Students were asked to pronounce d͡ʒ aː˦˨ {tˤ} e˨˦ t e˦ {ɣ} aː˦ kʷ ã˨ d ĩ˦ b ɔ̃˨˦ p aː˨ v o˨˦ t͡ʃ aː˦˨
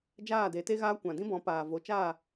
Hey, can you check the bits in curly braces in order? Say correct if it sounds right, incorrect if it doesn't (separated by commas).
incorrect, correct